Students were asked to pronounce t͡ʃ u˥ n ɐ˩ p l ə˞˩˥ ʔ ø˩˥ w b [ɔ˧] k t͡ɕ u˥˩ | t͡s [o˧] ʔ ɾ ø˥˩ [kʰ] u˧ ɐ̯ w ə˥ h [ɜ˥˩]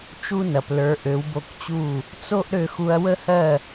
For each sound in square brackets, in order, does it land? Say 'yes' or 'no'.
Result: no, no, no, yes

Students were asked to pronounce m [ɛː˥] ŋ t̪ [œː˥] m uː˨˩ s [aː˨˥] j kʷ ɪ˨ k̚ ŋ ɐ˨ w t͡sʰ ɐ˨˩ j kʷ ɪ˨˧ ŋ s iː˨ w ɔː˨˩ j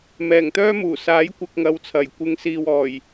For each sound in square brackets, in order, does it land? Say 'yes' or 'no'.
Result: no, yes, yes

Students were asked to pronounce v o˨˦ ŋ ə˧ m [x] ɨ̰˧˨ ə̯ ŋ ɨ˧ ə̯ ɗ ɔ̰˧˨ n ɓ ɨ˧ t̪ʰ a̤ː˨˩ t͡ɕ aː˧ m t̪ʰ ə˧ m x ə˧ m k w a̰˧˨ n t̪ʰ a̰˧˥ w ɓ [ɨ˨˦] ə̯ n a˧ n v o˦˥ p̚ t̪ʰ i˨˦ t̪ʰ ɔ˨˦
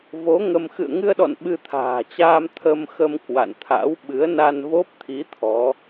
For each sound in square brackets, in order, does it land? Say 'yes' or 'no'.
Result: yes, yes

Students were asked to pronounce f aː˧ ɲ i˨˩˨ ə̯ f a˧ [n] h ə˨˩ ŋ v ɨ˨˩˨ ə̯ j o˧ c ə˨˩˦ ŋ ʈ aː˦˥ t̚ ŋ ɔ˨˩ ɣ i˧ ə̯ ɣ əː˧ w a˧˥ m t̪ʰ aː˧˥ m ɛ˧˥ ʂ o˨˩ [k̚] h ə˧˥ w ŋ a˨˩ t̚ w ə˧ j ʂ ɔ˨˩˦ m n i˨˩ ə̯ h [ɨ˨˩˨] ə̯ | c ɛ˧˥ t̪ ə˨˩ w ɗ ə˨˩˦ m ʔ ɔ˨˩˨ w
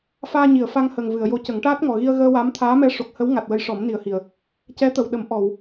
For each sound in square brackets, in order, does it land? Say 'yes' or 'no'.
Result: no, yes, no

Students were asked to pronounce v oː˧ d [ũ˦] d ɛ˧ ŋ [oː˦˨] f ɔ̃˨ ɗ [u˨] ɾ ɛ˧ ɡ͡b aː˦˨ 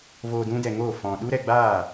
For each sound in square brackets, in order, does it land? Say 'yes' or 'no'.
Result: yes, yes, no

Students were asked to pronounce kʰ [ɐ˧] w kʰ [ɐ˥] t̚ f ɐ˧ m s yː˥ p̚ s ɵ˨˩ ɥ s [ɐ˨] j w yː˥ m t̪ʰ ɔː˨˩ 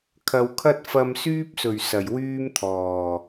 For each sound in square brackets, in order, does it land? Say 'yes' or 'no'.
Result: no, yes, no

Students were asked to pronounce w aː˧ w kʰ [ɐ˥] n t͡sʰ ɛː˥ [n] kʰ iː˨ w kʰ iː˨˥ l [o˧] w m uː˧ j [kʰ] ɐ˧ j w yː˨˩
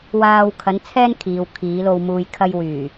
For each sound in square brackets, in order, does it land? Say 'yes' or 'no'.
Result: no, yes, yes, yes

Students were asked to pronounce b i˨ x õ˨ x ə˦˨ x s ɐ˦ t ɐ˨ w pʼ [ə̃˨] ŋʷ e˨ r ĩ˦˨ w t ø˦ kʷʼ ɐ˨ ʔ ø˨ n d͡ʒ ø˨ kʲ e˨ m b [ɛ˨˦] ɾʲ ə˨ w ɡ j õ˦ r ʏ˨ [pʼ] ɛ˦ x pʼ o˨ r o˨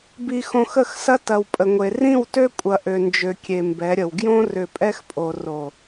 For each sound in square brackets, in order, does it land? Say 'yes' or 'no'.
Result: no, yes, yes

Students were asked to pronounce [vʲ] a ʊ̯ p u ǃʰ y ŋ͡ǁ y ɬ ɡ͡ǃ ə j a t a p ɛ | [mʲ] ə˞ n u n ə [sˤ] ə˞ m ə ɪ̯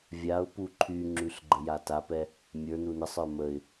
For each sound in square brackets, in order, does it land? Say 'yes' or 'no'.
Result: yes, yes, yes

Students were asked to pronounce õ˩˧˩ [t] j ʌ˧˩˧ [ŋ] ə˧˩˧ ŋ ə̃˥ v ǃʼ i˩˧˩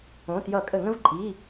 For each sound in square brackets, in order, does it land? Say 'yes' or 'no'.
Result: yes, no

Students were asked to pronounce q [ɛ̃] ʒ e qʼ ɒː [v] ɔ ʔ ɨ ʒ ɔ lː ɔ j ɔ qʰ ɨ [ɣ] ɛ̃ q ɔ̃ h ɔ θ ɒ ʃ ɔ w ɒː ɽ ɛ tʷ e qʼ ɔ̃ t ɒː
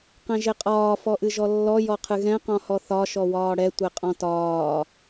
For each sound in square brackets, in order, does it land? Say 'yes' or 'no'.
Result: yes, no, yes

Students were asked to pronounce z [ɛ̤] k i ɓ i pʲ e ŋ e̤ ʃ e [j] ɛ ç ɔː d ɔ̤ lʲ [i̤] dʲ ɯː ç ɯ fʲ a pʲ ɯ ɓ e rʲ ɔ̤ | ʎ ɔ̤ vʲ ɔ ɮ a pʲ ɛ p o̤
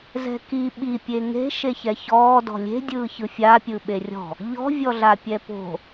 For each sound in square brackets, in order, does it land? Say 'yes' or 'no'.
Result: yes, no, no

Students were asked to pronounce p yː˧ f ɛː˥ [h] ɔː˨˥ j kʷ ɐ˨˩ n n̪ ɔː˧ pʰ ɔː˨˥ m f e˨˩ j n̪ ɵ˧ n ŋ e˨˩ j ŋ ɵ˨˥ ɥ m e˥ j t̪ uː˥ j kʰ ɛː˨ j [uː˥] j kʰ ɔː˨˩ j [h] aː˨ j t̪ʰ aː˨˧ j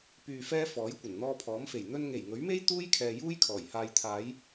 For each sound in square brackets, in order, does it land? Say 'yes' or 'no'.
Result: no, yes, yes

